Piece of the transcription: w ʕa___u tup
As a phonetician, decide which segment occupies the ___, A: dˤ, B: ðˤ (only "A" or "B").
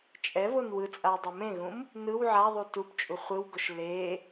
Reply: B